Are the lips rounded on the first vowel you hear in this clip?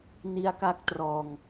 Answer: no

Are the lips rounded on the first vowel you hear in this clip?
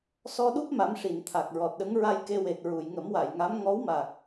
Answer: yes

